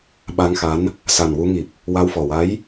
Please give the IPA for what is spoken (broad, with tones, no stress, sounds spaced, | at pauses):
ɓ a˧ ŋ x a˧˥ n | s a˨˩ n w u˧ ŋ i˨˩ p̚ | w a˧ w f ɔ˨˩ w a˧˥ j